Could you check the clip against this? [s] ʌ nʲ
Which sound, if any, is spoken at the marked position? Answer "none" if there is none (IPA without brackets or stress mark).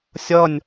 sʲ